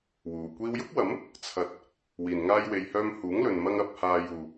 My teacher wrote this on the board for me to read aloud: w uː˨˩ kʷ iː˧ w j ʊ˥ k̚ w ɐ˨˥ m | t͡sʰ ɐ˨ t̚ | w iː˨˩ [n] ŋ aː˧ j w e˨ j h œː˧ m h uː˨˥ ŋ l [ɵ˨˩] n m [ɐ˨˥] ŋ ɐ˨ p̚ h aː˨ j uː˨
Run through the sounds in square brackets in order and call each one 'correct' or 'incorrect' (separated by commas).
correct, incorrect, incorrect